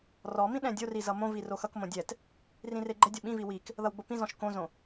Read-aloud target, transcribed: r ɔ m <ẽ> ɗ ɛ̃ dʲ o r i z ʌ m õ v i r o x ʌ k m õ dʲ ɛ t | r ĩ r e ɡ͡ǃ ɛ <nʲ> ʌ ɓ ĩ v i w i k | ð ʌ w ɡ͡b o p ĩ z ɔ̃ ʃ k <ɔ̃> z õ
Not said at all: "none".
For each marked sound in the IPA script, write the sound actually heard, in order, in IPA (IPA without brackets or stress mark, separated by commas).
ĩ, dʲ, õ